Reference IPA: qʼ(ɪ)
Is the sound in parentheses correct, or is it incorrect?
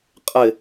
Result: correct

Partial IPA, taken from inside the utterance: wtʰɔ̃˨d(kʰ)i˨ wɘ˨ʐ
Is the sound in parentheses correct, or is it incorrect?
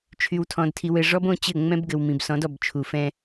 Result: incorrect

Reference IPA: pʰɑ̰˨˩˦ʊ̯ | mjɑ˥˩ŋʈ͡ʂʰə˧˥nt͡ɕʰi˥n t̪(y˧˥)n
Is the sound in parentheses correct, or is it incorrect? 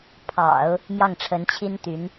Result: correct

